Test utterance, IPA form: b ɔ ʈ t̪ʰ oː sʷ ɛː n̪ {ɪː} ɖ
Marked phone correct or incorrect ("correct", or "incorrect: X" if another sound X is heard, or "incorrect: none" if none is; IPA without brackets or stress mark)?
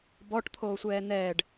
incorrect: ɛː